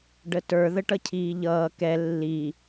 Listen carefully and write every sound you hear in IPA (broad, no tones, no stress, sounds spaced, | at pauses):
ɖ ə t ə˞ ð ə ʈ ʌ cʰ iː ʎ ʌː k ɛ lː i